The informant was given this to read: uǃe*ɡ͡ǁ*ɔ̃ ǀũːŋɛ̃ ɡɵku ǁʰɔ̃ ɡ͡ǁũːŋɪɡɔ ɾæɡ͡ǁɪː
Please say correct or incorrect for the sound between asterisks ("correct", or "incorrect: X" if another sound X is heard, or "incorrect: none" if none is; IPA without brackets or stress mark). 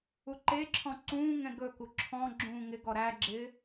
incorrect: ǁʰ